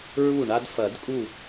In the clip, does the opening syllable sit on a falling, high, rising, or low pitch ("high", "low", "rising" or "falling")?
falling